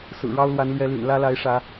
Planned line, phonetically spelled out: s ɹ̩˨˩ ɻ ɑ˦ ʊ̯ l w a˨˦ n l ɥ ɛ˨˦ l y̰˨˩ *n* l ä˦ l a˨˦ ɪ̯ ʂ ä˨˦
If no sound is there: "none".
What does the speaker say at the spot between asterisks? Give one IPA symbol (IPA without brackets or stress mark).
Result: n